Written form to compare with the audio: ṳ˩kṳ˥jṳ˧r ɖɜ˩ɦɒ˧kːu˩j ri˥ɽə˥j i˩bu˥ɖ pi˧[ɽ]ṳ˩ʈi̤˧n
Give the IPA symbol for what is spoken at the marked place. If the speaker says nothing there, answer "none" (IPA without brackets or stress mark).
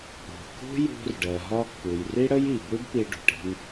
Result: ɖ